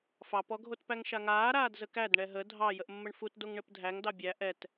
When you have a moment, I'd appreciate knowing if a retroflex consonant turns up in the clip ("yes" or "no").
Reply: yes